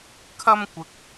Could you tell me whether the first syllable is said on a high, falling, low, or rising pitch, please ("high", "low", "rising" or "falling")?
high